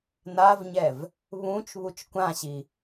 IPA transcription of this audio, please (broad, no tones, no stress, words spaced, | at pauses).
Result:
navɲɛv | βũt͡ʃ βut͡ʃkʷãɕi